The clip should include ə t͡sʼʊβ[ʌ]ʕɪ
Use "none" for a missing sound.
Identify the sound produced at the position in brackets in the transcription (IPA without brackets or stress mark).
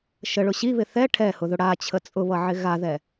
ʌ